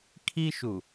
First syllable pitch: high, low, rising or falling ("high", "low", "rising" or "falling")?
high